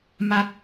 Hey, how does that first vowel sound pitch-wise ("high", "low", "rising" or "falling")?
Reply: high